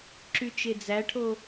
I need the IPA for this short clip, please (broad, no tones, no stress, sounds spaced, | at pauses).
ǁ y t͡ʃ e d͡z æ ʈʰ o